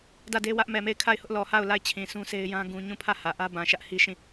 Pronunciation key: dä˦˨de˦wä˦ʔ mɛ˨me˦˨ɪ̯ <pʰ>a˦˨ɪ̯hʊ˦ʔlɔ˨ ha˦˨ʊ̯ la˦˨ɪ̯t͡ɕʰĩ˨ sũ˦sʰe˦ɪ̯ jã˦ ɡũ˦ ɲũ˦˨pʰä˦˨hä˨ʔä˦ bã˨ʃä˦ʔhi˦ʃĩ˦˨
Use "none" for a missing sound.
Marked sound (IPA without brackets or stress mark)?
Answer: kʰ